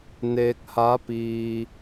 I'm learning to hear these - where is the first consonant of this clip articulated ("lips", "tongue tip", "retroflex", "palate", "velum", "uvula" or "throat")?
tongue tip